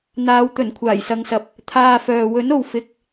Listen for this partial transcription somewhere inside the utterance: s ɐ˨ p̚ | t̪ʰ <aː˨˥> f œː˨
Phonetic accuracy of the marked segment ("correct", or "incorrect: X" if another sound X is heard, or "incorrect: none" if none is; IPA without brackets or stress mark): incorrect: aː˧